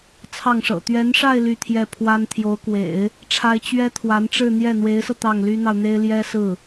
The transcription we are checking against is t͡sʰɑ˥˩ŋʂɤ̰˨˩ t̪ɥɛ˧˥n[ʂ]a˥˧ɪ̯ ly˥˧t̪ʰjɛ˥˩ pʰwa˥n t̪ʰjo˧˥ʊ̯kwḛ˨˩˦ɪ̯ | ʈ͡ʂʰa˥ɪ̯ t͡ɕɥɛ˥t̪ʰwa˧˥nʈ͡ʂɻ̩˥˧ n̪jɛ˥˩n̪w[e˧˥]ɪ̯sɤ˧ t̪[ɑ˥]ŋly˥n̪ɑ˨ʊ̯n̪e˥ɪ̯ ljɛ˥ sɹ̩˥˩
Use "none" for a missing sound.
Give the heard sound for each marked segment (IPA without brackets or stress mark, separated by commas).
ʂ, e˧˥, ɑ˥˩